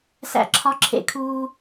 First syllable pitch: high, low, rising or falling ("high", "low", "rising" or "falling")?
low